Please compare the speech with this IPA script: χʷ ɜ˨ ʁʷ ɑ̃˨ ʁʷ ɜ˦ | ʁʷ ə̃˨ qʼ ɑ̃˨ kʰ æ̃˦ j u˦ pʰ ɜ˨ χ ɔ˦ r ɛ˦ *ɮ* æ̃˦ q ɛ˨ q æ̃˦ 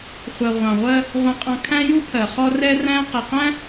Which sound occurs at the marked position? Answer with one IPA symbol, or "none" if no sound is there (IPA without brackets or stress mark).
r